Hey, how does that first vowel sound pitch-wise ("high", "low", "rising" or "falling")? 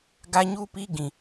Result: high